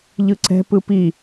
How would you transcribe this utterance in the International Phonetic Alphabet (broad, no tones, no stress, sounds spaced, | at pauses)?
ʎ ɯ ǀ ɛ̤ p ɯ p i